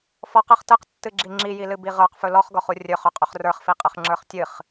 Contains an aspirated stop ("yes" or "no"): no